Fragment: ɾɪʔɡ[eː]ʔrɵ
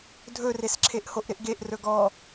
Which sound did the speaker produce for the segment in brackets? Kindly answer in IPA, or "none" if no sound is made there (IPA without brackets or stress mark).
e